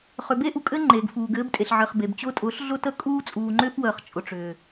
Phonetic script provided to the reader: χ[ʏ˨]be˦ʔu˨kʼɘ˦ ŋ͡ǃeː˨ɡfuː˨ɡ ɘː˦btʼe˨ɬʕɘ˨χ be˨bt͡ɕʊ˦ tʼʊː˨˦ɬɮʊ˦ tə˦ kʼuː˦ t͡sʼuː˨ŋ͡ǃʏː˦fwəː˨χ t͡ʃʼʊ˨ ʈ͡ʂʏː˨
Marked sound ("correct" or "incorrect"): correct